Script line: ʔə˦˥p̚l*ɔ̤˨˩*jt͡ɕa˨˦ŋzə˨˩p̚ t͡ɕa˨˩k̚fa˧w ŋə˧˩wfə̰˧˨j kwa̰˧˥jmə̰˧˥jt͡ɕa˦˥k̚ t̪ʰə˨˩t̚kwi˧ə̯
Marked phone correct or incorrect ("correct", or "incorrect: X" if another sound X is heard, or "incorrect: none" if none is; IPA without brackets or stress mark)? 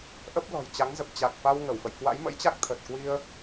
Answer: correct